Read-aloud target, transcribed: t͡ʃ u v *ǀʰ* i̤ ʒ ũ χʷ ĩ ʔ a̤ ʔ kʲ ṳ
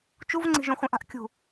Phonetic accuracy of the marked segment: incorrect: ŋ͡ǀ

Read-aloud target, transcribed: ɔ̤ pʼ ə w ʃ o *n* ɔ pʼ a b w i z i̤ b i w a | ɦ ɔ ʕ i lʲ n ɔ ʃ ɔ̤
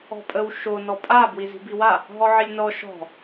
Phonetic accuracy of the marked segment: correct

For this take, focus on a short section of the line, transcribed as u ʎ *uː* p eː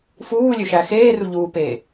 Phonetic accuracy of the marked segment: correct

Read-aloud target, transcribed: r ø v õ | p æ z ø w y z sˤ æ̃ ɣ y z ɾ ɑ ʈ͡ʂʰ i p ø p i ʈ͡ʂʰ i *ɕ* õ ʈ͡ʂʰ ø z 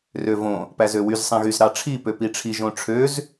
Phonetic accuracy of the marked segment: incorrect: ʒ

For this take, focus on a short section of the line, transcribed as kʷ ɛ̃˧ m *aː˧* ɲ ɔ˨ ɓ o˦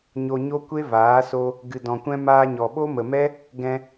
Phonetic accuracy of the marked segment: correct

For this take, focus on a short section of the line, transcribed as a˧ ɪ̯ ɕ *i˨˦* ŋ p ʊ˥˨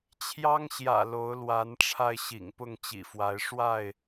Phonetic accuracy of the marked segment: incorrect: ḭ˨˩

